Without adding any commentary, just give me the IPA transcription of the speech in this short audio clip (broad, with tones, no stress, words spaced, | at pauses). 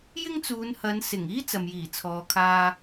jɪ˥ŋt͡suː˨˧nhɐ˨˧n sɪ˨˩ŋiː˥ t͡sɐ˨mjiː˨˩t͡sʰɔː˨kʰaː˧